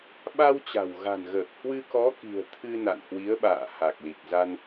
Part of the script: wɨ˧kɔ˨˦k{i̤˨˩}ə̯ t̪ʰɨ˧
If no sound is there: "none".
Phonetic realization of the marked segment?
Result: i̤˨˩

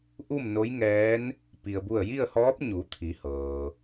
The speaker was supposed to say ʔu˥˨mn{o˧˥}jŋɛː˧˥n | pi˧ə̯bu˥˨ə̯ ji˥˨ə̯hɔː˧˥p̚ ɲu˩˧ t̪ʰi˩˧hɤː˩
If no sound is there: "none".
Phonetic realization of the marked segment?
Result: o˧˥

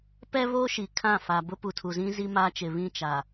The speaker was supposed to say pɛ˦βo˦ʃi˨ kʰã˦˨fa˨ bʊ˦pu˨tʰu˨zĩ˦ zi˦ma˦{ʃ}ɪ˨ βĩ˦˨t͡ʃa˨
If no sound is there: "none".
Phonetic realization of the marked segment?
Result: t͡ʃ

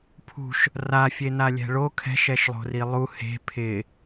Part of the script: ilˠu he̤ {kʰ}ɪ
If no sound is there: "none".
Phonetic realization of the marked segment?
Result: pʰ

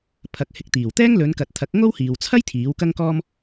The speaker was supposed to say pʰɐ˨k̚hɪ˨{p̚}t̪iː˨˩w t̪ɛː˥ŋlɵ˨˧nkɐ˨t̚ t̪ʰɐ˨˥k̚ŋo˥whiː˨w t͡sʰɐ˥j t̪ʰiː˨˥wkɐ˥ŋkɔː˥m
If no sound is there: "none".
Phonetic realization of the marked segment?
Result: k̚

